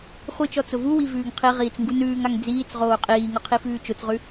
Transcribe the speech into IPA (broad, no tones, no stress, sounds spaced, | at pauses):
χʷ i t͡ʃ ɔ t͡s ʊ v u w i v ʉː ŋ qʰ i ʁ iː t͡s ŋ ɡ u n ʉː ŋ a ŋ d͡z iː t͡s ʁ oː qʼ iː ŋ ʊ qʰ i f ʉː t͡ʃ ʊ t͡s ʁ ʉ